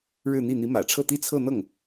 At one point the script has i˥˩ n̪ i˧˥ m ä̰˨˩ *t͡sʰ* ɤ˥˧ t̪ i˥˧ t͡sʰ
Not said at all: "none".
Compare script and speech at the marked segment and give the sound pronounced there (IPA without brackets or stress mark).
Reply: ʈ͡ʂʰ